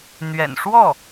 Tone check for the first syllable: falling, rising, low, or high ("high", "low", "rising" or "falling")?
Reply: low